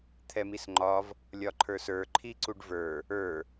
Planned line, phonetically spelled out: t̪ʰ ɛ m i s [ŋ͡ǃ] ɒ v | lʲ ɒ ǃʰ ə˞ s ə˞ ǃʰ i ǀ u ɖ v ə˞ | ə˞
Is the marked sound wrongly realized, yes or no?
no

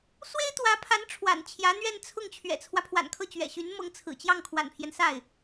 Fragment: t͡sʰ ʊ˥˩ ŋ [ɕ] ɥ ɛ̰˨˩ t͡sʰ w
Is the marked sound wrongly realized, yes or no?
yes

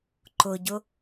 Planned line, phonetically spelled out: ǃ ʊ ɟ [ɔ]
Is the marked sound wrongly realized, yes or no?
yes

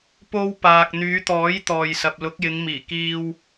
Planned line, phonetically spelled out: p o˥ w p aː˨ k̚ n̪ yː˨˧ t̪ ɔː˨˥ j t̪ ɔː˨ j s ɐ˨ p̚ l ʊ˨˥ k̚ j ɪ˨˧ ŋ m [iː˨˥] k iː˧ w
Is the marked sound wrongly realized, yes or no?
yes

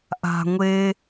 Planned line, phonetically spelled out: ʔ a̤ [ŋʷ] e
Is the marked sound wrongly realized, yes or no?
no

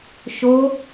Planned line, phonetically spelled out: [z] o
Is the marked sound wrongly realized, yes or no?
yes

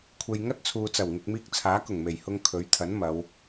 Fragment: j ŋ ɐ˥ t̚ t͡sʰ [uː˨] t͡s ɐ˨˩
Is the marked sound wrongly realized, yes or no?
no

